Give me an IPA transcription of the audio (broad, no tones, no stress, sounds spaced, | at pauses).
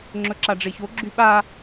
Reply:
ŋ͡ǁ ɵ ǁ a ɖ͡ʐ e ç o ɡ͡ǁ y ɓ a